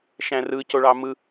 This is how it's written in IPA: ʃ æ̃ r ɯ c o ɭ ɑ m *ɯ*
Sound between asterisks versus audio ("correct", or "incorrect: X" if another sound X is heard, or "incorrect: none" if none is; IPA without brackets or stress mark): correct